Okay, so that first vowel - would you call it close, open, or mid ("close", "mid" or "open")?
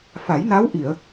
open